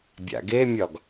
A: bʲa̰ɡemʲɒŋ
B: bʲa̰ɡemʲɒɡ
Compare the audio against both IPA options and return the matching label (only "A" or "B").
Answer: B